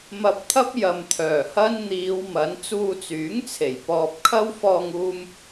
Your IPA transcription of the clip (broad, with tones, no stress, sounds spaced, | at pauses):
m ɐ˧ p̚ t̪ʰ ɐ˥ p̚ j ɐ˨ m t̪ʰ œː˨˩ h ɐ˥ n n̪ iː˨˧ w m ɐ˨˥ n t͡s uː˧ t͡s yː˨˥ ŋ t͡sʰ e˨˩ j p ɔː˧ p̚ kʰ ɐ˥ w f ɔː˧ ŋ uː˧ m